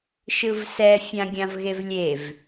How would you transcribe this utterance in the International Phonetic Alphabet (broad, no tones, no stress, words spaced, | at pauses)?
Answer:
ʃɯvsɛ fʲãɡʲãvɣevlʲev